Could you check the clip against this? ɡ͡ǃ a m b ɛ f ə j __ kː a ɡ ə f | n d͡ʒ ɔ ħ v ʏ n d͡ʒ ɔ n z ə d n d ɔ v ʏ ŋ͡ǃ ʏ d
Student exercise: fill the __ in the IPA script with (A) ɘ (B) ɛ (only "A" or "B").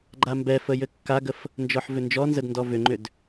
A